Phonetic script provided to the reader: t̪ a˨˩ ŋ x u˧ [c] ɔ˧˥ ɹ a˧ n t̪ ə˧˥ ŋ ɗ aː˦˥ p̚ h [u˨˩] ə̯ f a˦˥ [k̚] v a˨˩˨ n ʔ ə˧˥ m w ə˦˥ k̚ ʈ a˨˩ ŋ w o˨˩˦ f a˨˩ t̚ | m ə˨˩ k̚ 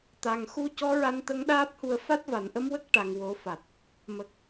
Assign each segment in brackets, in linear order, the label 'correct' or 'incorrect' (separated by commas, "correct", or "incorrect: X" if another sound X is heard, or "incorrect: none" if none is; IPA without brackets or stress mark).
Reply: correct, incorrect: u˧, incorrect: t̚